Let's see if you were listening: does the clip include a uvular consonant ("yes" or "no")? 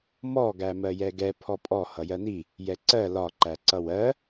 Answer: no